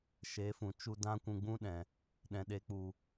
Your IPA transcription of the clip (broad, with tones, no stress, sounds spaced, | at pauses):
ʃ e˨˦ f ũ˨ t͡ʃ u˧ d ã˦ kʷ ũ˧ ɡ͡b ũ˦ ɗ ɛ̃˨ | ɗ ɛ̃˨ ɗ e˨˦ k͡p u˨